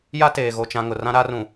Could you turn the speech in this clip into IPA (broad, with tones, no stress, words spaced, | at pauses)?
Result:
ja˦teː˨ ɣo˨t͡ʃã˨ ŋʊ˨rã˦ ɾa˦rũ˨